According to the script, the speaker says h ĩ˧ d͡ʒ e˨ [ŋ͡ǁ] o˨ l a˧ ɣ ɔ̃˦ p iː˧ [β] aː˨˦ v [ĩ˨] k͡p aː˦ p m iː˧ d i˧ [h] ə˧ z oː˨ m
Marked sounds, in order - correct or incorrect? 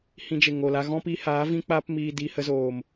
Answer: incorrect: ŋ, incorrect: h, incorrect: ĩ˦, correct

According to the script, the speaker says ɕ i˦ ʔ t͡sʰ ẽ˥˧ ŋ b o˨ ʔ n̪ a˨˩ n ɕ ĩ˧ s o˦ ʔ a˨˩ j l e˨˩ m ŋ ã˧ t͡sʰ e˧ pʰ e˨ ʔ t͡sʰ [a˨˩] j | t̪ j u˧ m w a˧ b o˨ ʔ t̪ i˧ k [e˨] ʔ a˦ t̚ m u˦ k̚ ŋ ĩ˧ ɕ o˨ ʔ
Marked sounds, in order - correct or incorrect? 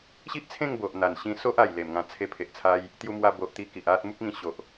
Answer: incorrect: a˧, incorrect: i˨

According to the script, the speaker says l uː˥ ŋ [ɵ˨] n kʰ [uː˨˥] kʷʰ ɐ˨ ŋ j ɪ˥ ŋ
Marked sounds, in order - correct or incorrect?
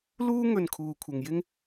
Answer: incorrect: ɵ˧, incorrect: uː˨

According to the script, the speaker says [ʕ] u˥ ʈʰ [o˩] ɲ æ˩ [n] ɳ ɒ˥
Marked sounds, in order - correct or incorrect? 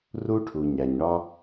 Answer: incorrect: r, incorrect: u˩, incorrect: ɲ

